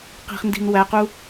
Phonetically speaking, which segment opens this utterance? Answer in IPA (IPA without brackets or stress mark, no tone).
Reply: q